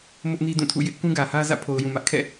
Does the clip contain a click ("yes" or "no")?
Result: no